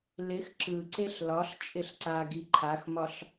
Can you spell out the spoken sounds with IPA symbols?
lɪx ǁɯǀeɬ lɒɬ t͡ʃʼɪɬǀaɡi ǃʰaxmɒɬ

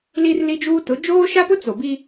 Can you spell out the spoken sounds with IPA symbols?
li˦rli˦d͡ʒuː˦ tʊ˨˦ d͡ʒoː˦ʃa˦pʊ˦ t͡so˨bi˦

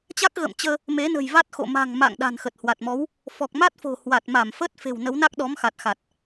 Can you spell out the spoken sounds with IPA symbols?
t͡ɕa˦˥k̚ɣə̰ː˧˨mt͡ɕəː˧ | me˨˦nə̤˨˩jva˦˥t̚xo̰˧˨ ma̤˨˩ŋma̰˧˨ŋ ɗa̤˨˩nxə˨˩t̚ hwa˨˩t̚mɔ˨˦w | fɔ˨˩k̚ma˦˥t̚fo̤˨˩ hwa˨˩t̚ma˧˩mfə˦˥t̚ fe̤˨˩wnə˨˦wna˦˥k̚ ɗɔ˨˦mxa˨˩t̚xa˨˩t̚

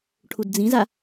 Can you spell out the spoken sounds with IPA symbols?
ʈʰudd͡zĩza

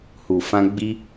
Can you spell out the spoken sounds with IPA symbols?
hu˨fã˧ ɡ͡bi˦

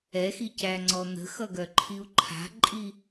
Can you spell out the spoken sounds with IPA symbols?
ɛxicæŋ͡ǀɔ n̪ə̤xʌɡœǃʰiu̯ ǃʰa̤ǃʼi

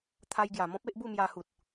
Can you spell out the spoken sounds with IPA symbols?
t̪ʰa˧jɡja˨˩mɔ̃˦p̚ e˦ʔbu˥˧mja˧hu˨t̚

